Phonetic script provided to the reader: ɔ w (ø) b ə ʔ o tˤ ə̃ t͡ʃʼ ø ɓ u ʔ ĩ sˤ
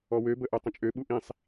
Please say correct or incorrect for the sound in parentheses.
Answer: correct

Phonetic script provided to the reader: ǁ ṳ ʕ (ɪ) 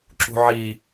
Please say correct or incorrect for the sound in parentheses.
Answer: incorrect: i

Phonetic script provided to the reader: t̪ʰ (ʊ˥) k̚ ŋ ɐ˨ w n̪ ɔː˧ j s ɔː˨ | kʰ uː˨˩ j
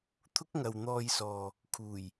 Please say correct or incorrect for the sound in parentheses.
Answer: correct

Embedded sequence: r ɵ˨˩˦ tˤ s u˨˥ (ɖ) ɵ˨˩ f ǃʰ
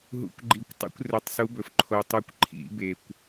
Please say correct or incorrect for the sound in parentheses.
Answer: incorrect: b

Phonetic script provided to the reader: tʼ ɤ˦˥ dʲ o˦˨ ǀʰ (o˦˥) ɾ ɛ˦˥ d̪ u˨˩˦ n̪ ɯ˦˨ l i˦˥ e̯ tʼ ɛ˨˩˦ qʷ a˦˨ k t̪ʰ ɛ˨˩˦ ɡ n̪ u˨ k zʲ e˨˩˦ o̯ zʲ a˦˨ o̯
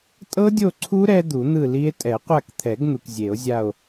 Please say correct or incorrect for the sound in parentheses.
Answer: incorrect: u˦˥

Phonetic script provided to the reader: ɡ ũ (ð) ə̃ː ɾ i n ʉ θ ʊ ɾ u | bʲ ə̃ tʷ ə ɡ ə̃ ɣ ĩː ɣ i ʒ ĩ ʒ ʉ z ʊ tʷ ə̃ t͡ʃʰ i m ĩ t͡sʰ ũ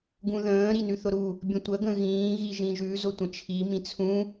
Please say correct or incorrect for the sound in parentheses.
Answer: correct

